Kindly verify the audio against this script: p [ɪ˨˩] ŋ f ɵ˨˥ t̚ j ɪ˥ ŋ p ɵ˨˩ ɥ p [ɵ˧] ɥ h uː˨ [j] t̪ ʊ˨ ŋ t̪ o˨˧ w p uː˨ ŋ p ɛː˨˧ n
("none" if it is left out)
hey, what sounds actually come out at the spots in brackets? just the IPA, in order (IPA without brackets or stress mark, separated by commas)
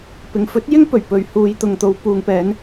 ɪ˨, ɵ˨˧, j